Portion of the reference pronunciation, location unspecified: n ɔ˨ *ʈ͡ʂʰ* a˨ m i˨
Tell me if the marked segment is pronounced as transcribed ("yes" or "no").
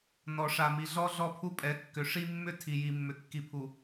no